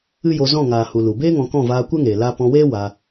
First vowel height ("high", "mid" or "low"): high